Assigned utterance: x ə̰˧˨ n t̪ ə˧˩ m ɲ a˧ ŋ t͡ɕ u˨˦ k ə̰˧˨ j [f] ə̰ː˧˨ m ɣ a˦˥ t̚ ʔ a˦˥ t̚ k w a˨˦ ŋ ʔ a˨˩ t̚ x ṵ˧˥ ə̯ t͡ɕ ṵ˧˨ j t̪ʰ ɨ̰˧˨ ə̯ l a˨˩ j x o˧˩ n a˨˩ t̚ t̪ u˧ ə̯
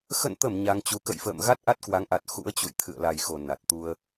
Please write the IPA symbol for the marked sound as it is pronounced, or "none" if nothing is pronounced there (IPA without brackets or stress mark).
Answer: f